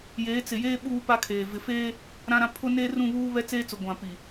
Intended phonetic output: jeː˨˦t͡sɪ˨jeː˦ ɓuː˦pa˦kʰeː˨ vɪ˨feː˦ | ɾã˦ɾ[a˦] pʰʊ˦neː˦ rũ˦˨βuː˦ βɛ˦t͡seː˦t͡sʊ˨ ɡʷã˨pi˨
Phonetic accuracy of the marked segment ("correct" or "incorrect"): incorrect